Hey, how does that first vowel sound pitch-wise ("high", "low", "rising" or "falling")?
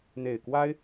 low